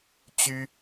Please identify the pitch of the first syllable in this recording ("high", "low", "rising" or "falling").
high